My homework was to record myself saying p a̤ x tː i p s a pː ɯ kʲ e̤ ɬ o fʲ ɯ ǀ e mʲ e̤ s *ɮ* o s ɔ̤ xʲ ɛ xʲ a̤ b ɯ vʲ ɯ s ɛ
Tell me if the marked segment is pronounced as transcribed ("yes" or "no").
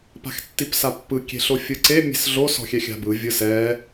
yes